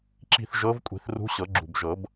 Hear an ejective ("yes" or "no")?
yes